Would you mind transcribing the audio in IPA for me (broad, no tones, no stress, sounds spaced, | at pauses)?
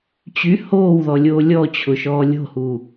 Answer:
t͡ɕ y h oː w ð ɔ lʲ oː lʲ ɔ t͡ɕʰ ʊ ʃ ɔː lʲ o̤ h u